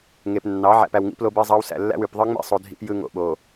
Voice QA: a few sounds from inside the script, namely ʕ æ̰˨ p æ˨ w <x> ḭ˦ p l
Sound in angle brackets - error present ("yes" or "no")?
yes